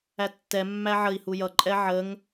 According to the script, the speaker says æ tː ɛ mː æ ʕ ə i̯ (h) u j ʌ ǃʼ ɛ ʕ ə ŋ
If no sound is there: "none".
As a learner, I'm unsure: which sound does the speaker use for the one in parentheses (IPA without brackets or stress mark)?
h